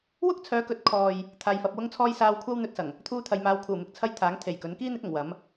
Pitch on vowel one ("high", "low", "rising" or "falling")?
high